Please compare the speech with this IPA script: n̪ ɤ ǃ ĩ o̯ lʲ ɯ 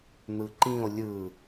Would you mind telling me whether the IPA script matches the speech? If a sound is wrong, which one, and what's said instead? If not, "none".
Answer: ɤ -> ɯ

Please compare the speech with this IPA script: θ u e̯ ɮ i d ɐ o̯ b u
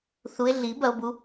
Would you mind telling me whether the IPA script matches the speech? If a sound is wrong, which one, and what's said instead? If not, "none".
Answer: d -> b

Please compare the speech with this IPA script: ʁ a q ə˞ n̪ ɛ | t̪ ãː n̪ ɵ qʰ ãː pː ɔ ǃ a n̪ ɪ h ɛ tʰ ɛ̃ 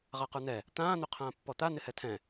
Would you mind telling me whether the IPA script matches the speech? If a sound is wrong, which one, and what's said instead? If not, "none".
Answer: ǃ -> t̪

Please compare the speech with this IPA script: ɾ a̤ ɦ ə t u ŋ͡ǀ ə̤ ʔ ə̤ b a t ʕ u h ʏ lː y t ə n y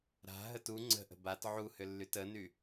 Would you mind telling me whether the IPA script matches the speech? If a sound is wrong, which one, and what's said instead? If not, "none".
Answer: none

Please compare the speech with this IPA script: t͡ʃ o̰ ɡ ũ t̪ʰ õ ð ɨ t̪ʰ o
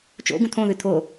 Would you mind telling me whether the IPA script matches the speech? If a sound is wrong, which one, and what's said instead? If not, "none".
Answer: none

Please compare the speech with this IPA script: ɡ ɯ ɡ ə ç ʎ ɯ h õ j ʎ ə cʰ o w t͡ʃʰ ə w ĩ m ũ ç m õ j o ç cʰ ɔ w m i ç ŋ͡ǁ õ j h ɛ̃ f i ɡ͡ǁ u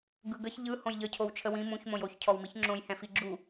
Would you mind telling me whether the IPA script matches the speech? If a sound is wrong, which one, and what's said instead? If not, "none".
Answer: none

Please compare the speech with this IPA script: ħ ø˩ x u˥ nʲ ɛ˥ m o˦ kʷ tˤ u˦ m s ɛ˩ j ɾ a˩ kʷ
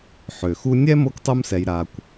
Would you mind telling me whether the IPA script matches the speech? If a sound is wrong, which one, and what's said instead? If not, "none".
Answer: none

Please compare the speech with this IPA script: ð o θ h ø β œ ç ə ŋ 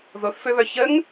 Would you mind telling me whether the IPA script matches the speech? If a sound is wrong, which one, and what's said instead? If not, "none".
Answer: h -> f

